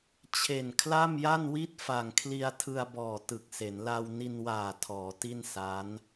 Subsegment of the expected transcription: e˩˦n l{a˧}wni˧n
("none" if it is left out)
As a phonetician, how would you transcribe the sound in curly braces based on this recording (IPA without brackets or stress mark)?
a˧